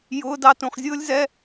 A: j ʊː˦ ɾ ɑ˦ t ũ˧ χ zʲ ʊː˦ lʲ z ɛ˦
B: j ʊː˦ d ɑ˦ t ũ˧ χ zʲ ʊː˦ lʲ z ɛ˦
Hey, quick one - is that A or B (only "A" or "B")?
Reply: B